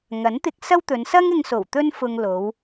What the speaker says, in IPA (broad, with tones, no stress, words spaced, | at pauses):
ŋɐ˨˥nt̪ɪ˧k̚ sɐ˥wt̪ɵ˨˧n sɐ˥ŋɪ˧ŋso˨˩w t̪ɵ˥nfʊ˧ŋ lo˨˧w